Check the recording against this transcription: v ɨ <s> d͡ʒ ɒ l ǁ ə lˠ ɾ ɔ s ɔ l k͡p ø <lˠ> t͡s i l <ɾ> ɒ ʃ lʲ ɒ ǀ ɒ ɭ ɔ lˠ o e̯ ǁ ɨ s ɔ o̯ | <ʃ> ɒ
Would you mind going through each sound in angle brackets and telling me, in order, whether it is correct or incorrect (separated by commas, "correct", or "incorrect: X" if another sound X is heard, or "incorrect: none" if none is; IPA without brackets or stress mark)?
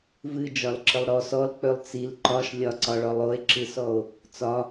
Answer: incorrect: none, correct, incorrect: ǃ, incorrect: t͡s